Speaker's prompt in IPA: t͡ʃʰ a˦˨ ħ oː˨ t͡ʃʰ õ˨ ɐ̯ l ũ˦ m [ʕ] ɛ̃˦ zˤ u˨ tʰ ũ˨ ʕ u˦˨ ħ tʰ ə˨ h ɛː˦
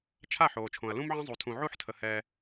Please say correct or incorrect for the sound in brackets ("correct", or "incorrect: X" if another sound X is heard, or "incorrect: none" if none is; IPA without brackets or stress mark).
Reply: correct